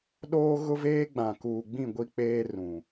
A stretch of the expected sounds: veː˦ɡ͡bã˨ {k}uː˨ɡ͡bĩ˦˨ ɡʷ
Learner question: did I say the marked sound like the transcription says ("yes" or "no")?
yes